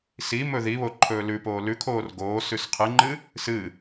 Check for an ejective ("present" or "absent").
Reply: absent